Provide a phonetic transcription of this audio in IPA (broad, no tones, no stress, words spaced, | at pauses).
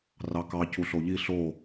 rɑkɑ cuɬoʎi ɬo